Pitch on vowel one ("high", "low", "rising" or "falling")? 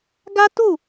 high